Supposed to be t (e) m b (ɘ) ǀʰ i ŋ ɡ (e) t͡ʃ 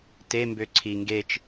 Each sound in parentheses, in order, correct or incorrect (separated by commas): correct, incorrect, correct